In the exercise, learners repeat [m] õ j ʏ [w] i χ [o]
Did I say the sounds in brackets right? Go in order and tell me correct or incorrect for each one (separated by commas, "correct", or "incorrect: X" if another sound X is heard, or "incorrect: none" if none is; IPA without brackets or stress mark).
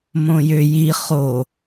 correct, incorrect: j, correct